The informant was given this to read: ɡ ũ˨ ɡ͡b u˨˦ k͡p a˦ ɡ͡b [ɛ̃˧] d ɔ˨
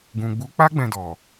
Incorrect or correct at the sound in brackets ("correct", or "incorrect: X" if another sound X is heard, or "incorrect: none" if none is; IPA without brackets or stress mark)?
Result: correct